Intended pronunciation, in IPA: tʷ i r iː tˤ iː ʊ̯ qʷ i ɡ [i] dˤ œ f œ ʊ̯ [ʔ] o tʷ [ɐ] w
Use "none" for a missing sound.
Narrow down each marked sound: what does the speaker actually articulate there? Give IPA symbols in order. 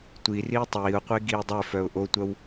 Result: iː, ʔ, ɐ

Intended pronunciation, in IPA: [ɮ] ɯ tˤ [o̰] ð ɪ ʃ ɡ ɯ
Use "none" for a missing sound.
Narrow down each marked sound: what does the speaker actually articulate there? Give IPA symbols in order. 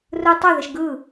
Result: r, o

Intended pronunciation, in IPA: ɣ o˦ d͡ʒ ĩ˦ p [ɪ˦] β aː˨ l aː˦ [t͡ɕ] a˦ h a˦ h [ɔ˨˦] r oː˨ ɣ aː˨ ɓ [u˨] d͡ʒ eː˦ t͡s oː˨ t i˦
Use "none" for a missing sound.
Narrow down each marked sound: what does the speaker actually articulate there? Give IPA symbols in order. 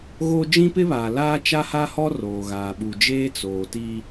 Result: ɪ˦, t͡ʃ, ɔ˦, u˨

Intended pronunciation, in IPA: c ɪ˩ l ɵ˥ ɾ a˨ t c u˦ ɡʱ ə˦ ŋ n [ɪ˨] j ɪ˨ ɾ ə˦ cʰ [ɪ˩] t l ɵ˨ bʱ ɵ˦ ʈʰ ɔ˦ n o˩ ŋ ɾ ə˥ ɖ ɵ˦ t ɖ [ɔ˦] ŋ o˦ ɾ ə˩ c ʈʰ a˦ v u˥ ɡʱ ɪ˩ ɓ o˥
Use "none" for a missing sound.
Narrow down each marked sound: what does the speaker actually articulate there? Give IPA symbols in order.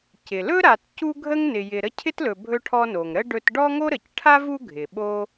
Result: ɪ˨, ɪ˥, ɔ˦

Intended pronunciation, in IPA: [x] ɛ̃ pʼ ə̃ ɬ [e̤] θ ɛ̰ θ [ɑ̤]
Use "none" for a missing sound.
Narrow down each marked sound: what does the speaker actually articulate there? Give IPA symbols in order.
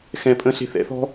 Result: x, e̤, ɔ̤

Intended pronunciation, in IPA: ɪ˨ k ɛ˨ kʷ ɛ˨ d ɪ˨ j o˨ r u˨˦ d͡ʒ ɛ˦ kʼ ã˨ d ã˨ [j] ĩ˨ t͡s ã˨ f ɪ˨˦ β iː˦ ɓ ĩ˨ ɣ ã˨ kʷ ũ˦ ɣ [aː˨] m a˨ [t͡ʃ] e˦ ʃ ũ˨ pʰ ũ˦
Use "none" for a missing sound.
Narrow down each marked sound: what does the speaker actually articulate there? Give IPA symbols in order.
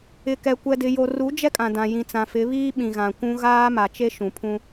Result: j, aː˦, t͡ʃ

